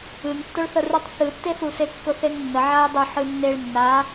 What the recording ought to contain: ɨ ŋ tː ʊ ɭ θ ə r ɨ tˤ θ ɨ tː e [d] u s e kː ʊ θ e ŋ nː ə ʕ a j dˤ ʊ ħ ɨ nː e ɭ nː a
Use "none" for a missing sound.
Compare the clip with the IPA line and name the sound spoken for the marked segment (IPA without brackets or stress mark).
θ